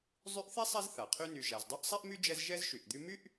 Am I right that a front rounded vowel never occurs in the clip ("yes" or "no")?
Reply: no